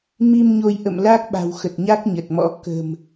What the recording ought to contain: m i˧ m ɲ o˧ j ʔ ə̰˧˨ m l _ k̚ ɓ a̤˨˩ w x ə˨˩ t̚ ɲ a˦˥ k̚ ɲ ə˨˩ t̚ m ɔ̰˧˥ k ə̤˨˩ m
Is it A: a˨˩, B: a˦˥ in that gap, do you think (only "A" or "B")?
B